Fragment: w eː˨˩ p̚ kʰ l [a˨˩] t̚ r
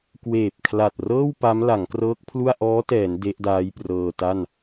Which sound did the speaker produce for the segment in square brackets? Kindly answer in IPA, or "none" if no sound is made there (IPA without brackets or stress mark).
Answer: a˨˩